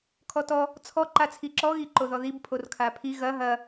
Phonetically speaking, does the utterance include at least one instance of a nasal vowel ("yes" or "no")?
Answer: no